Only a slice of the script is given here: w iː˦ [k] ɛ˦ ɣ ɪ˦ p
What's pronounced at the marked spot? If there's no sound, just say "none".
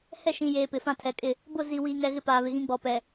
ŋ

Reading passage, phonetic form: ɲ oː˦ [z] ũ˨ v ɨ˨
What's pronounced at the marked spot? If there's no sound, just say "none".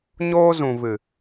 z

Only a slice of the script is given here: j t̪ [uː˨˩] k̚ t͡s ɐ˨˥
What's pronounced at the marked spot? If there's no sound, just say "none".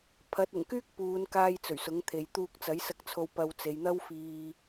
uː˧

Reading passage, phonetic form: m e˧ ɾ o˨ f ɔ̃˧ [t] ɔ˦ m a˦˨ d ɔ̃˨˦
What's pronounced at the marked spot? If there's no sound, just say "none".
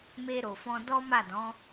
d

